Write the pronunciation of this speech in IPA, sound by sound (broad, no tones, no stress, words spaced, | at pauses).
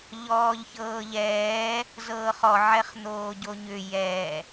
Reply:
ʎɔːʎçɤːʎɛː | zɤːχɔ ʕɛχn̪oːɟoɲʏ jɛ